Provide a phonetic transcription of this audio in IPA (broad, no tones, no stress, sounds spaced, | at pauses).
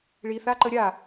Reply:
ɭ i θ a ǃ ə ɾʲ a